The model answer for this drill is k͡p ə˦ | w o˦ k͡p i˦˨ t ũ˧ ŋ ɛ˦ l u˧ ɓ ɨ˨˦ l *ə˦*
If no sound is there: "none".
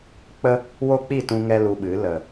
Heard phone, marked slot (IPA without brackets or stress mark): ə˨